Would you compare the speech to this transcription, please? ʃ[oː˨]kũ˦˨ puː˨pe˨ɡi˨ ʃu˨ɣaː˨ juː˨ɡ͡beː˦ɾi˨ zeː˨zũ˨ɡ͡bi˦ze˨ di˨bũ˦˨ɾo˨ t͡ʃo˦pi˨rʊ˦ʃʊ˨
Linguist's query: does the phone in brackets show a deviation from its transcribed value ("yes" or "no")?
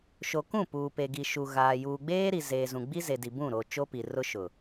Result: yes